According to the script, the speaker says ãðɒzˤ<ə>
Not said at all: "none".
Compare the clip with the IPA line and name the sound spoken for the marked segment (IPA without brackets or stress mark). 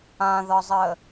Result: ə